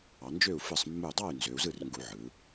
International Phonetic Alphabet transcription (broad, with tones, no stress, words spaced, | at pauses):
ɑ˩˧nd͡ʒø˥˩u̯ fɯ˧˩sˤmːu˧˩dˤɑ˥˩y̯ nzø˩˧u̯zɯ˥˩rŋɡu˧˩˧ ʕɯ˩˧